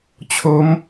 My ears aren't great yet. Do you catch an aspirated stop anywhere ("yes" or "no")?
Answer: yes